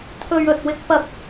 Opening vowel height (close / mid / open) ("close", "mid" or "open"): mid